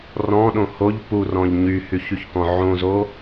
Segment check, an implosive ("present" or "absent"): present